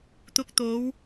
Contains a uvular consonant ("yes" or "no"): no